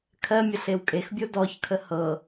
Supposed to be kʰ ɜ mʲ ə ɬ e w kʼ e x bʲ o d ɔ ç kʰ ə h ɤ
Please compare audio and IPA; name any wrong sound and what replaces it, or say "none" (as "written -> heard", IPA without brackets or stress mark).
none